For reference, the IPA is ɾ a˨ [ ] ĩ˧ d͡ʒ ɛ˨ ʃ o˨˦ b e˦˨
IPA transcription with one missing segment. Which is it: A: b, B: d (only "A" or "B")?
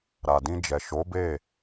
B